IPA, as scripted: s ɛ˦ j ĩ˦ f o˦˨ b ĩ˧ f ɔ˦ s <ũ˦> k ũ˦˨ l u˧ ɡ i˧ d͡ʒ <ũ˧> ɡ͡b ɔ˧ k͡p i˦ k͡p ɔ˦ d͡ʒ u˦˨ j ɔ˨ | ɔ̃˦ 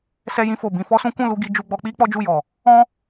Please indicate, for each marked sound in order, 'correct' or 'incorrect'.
correct, incorrect: u˧

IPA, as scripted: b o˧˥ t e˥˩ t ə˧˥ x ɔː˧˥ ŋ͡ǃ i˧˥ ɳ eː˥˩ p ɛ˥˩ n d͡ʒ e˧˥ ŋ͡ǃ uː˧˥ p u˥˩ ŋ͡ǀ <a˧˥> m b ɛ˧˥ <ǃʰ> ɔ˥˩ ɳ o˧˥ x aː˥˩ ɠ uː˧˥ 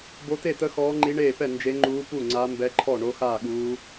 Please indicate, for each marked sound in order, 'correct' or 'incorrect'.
correct, correct

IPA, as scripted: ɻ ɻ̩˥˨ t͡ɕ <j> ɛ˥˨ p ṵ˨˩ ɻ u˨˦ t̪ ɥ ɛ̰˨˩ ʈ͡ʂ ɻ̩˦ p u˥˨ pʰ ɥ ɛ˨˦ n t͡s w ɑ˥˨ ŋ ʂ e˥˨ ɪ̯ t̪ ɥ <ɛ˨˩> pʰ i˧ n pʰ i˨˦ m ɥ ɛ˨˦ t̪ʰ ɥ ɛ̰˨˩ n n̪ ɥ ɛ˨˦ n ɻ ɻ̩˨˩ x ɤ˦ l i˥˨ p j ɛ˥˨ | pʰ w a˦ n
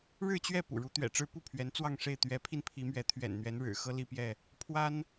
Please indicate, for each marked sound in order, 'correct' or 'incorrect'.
incorrect: ɥ, incorrect: ɛ˨˦

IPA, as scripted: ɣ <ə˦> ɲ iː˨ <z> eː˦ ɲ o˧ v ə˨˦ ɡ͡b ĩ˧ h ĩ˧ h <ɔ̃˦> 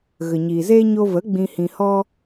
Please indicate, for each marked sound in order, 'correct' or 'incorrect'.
incorrect: ə˨, correct, incorrect: ɔ˦

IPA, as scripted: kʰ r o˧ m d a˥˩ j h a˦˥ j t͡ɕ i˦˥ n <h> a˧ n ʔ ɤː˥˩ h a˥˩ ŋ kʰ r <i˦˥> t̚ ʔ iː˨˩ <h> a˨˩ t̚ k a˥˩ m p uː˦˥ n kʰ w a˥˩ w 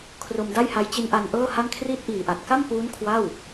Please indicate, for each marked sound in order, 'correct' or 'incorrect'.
incorrect: ʔ, correct, incorrect: ʔ

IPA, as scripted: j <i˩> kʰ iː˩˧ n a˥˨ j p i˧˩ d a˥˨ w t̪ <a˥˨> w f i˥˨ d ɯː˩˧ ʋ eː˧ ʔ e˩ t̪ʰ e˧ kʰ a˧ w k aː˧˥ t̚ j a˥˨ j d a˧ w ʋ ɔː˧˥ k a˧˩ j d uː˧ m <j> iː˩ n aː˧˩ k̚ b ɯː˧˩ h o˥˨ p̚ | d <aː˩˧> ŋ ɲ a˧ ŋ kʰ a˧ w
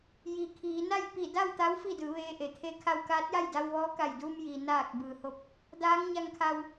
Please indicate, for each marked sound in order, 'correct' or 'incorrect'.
correct, incorrect: a˧˥, correct, incorrect: aː˧˥

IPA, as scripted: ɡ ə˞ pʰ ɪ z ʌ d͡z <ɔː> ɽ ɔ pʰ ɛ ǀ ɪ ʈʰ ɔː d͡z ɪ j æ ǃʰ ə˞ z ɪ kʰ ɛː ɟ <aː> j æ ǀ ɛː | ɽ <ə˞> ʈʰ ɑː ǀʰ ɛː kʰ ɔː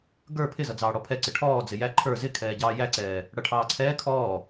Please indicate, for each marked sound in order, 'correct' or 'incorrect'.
incorrect: ɑː, incorrect: ɑː, incorrect: ʌ

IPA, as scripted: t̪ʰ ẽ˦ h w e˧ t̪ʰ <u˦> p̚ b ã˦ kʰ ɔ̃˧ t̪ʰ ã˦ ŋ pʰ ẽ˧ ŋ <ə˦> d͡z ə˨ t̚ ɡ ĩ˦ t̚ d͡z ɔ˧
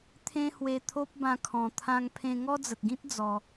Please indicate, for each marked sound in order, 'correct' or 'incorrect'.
incorrect: o˦, incorrect: ɔ˦

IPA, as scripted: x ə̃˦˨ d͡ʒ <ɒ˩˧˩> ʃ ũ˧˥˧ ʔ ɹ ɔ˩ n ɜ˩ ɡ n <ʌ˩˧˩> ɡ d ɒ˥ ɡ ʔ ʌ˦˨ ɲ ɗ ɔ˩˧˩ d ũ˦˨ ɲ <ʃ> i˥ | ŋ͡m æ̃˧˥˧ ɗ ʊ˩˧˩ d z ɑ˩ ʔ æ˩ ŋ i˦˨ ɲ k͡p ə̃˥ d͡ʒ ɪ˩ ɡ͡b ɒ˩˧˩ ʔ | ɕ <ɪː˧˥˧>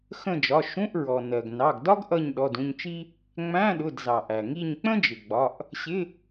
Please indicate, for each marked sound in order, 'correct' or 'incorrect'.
correct, incorrect: ɑ˩˧˩, incorrect: t͡ʃ, incorrect: ɪ˧˥˧

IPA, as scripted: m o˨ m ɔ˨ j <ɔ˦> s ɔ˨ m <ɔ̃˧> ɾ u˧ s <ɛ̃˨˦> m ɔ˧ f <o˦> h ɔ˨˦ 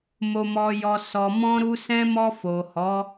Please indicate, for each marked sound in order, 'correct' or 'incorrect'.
incorrect: ɔ˨, correct, incorrect: ɛ̃˧, incorrect: o˨

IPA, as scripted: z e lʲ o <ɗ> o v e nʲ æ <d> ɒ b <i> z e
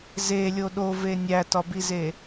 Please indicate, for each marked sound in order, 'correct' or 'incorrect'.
correct, incorrect: t, correct

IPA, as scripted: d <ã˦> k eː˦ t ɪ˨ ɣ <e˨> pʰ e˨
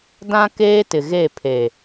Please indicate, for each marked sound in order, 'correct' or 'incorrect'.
correct, incorrect: e˦˨

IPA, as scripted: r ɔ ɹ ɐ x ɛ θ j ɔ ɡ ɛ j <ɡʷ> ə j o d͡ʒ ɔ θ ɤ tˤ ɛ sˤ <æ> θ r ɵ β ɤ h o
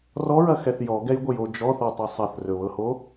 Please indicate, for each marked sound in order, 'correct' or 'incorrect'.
correct, incorrect: ɐ

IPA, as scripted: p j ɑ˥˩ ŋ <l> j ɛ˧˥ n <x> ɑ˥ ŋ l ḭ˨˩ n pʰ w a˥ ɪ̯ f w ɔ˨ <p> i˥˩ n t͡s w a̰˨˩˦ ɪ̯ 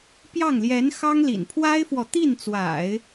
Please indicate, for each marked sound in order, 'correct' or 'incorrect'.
correct, correct, incorrect: t̪

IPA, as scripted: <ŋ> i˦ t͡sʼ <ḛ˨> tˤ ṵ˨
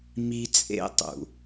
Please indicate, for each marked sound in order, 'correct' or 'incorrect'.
incorrect: m, incorrect: ḛ˦

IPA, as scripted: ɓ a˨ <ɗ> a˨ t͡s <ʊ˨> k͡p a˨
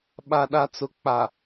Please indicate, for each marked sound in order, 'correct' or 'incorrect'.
correct, correct

